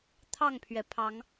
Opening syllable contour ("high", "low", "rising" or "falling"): falling